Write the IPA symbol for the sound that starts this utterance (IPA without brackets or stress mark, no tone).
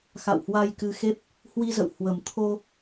x